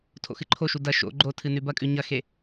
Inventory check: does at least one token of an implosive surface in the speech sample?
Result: no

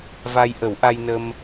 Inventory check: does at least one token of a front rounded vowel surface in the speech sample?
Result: no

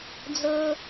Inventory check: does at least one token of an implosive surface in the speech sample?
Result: no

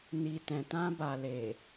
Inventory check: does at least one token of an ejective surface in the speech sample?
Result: no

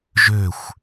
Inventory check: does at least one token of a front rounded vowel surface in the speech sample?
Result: yes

